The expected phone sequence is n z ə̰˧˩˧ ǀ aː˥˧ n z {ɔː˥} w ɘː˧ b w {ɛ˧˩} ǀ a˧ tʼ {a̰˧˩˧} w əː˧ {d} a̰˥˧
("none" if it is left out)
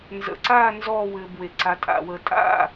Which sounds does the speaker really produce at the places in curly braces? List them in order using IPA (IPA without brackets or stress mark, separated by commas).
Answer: ɔː˥˧, e˧˩, a̰˧˩˧, tʼ